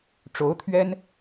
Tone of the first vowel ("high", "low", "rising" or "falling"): rising